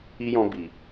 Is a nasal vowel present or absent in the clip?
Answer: present